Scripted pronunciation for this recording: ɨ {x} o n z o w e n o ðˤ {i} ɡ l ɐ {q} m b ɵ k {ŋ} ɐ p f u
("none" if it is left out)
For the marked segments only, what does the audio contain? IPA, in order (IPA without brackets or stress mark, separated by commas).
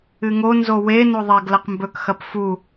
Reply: ŋ, e, q, x